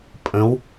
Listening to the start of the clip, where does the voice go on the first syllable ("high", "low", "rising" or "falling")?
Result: rising